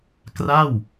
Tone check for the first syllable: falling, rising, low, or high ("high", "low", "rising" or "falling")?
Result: falling